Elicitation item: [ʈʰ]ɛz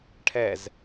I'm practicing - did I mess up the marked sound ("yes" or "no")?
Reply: no